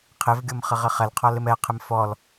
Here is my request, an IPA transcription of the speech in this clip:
qʰ e v ɡʲ o m χ ɪ ʁ ɪ χ ɛ l qʰ ɔ l ɪ m ɛ qʰ ɪ m f ɔ l

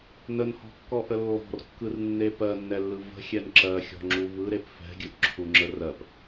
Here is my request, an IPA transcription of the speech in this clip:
n ə n h ɔ̤ kː ɔ ʔ ə lː ɔ̤ r kː ɯ r nː e p ɜ nː ɛ lː ɯ v ə̤ xʲ ɛ n ǁ ɜ xʲ ɔ̤ ŋ͡ǁ u v ɯ ɾ e p f ɛ̤ ɡʲ ɯ ʔ ǁʰ u ŋ͡ǁ ə r ɜ p

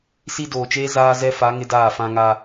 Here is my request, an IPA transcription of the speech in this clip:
s i˦ d oː˨ t͡ʃ eː˦ z aː˦ z ɛ˦ f a˨˦ ŋ ɪ˦ d aː˦˨ f ã˦ ŋ a˦

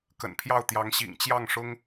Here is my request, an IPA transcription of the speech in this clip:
k ə̰˨˩ n pʰ j ɑ˥˩ ʊ̯ t̪ j ɑ˧˥ ŋ ɕ ḭ˨˩ ŋ t͡ɕ j ɑ˥˩ ŋ ʂ ʊ˥ ŋ

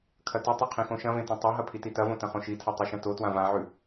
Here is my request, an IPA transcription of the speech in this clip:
kʰ ɐ t ʉ tˤ ɐ qʰ ĩ x õ ʃ ɐ̃ v ẽ t õ tˤ o ɦ ɐ pʰ i t i t ɐ v õ t ɐ̃ χ õ ʃ i tʰ ɐ tˤ u ʃ ɐ̃ t o t w ã v ã ʕ ʉ

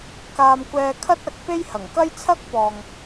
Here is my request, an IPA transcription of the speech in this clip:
k aː˨ m kʷ ɛː˨ kʰ ɐ˥ t̚ ɐ˨˥ k̚ p e˥ j h ɐ˨˩ ŋ k ɐ˥ j t͡sʰ ɐ˥ k̚ p ɔː˨ ŋ

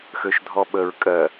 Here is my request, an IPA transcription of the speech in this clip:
x ø ʃ dʱ ɔ ɓ ə ɹ kʼ ɜ

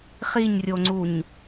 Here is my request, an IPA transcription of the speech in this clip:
χ i ɲ rʲ o ŋ͡ǀ u ɲ

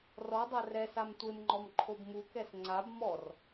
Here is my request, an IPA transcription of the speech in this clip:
r ɔ dˤ a r ɛ s a m tʷ e m ŋ͡ǃ ɔ m ǃʰ o b m u k ɛ s ŋ͡ǀ a b m ɔ r

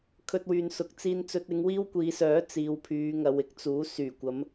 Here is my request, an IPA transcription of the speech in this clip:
kʰ ɵ˧ t̚ w yː˨ n s ʊ˨˥ k̚ t͡s iː˧ n t͡s ɵ˧ t̚ ɪ˨˧ ŋ w iː˥ w kʷ iː˨˧ s œː˨˥ t͡s iː˨˧ w pʰ yː˨˧ ŋ ɐ˨˧ w ɪ˥ k̚ t͡s uː˨˥ s yː˨˩ kʷ ɐ˨˧ m

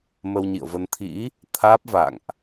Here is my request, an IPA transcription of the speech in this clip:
m ə˧ w ɲ ḭ˧˨ ə̯ v ə˧ n t̪ʰ ḭ˧˥ | t̪ʰ aː˦˥ p̚ v a̰˧˨ ŋ ʔ

